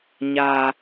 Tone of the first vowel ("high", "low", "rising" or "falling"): low